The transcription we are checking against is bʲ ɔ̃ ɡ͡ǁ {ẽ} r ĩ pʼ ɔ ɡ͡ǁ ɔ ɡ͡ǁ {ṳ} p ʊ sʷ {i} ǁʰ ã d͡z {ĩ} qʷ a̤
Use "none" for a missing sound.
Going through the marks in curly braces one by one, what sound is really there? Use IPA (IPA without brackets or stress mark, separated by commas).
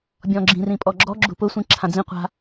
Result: ĩ, ṳ, ĩ, ĩ